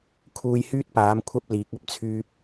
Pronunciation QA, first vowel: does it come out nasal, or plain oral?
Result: oral